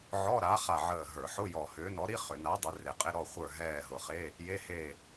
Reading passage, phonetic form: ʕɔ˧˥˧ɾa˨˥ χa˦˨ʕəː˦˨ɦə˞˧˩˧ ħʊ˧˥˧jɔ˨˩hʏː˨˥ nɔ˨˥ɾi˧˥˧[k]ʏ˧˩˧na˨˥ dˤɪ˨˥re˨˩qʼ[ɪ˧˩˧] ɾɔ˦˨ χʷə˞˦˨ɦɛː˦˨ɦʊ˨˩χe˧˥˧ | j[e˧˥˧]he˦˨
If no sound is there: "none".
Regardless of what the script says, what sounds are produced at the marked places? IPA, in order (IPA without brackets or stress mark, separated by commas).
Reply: χ, ɪ˧˥˧, e˧˥˧